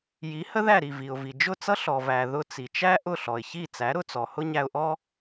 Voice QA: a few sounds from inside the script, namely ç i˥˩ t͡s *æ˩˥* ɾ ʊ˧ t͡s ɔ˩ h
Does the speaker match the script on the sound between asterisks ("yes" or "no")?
yes